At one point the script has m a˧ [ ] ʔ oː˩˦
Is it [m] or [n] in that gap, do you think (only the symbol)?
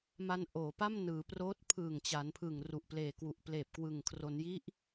n